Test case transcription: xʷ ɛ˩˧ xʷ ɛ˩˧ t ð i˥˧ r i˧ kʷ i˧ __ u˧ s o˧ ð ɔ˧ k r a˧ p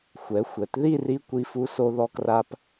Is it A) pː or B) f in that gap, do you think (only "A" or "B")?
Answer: B